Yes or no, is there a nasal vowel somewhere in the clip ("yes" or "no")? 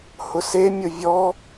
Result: no